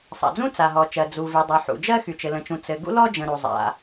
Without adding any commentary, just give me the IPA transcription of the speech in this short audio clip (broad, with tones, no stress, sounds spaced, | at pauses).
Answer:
sˤ a̰˩ d͡z ũ˥ t͡s a˩ ɦ ɔ˩ t͡ʃ ɜ˩ d͡z u˩ v y˩ dˤ y˩ ħ ṵ˩ d͡ʒ ɜ˥ x y˩ t͡ʃ ɘ˩ l ə̃˩ t͡ʃ ũ˩ t͡s ɘ˩ ɡ ṵ˥ l ɔ˥ d͡ʒ ə̃˩ ɾ u˩ zˤ a̰˩